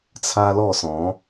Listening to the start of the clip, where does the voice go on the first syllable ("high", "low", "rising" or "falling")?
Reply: high